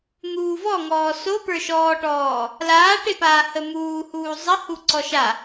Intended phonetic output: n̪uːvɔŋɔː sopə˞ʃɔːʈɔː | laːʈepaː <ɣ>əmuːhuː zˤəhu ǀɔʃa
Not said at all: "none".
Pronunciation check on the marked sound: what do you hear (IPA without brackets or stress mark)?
h